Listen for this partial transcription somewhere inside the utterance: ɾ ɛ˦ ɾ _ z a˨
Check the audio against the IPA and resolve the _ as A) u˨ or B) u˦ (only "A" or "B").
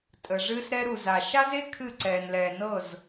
A